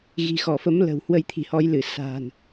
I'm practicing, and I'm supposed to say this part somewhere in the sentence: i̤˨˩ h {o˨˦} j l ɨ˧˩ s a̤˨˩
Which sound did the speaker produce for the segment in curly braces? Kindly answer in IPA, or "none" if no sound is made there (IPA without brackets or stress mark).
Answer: ɔ˨˦